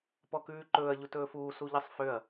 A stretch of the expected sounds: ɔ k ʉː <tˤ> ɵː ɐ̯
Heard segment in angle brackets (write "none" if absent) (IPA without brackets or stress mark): ǃ